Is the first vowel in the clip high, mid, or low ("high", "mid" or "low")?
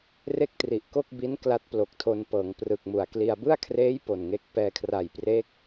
mid